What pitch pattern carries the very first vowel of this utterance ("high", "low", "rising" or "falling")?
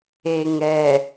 low